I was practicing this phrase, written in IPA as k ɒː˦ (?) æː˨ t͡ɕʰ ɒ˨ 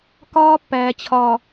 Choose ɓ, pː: pː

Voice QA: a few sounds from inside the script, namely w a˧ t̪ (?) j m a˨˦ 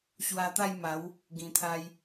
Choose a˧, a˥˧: a˥˧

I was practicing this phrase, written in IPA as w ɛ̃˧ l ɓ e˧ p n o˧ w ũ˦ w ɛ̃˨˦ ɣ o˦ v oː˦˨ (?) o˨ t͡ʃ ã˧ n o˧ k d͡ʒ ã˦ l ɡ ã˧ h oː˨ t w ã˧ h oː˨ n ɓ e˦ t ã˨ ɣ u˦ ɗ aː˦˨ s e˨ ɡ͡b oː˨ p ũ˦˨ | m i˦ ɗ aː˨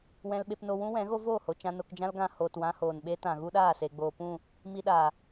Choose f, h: h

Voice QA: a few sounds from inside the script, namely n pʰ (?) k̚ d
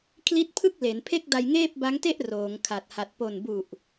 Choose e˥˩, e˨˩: e˥˩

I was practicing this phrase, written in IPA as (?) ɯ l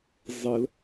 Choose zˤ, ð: zˤ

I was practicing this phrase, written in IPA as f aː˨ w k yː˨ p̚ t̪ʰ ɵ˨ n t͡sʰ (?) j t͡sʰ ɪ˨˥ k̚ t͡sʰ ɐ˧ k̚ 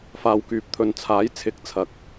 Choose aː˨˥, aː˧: aː˨˥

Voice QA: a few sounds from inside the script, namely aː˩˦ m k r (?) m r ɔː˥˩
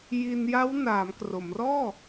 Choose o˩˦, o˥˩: o˩˦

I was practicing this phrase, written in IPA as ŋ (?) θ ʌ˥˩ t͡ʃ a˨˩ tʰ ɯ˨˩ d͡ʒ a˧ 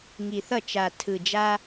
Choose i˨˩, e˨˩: i˨˩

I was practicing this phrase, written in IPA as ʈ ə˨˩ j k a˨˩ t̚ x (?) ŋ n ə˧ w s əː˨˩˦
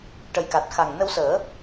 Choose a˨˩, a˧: a˨˩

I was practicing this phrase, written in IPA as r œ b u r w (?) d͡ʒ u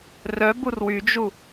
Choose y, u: y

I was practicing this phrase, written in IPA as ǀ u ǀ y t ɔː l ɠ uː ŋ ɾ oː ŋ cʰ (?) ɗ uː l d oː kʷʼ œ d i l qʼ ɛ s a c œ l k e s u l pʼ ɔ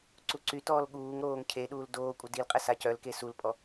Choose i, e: e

